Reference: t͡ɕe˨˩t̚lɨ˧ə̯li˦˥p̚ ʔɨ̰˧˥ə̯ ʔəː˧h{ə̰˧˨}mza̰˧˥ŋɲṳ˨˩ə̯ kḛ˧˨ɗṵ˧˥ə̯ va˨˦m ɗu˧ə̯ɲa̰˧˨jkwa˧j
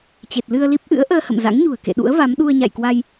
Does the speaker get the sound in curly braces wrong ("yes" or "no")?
no